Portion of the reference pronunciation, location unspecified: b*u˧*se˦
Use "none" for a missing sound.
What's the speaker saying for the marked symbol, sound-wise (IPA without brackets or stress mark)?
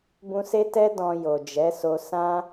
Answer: ũ˧